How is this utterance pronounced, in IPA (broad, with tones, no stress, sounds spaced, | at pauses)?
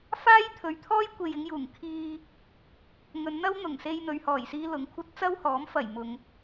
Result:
f aː˥ j t̪ʰ ɵ˨ ɥ t̪ʰ ɔː˥ j kʷ e˨ j ɪ˧ ŋ j uː˨˩ ŋ kʰ iː˧ | ŋ ɵ˨˧ n n̪ ɐ˥ w n̪ ʊ˨˩ ŋ s e˧ j n̪ ɵ˨ ɥ h ɔː˨˩ j s iː˧ l ʊ˨˥ ŋ kʷʰ ɐ˥ t̚ t͡s ɐ˥ w h ɔː˨˥ m f ɐ˨˩ j m ʊ˨ ŋ